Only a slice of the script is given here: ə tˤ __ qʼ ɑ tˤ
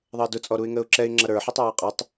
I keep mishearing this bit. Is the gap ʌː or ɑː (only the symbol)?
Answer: ɑː